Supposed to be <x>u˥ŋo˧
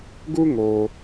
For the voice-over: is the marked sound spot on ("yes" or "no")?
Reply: no